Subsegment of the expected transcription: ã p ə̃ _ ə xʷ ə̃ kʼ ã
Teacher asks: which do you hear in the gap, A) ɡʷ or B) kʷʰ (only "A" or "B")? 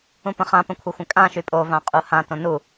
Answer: B